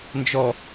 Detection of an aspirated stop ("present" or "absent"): absent